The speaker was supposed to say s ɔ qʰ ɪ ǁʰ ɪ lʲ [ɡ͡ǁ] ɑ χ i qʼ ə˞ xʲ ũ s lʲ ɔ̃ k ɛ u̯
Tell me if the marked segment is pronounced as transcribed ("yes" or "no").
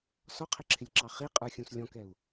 no